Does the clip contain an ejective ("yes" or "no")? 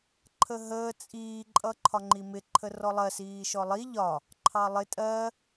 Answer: yes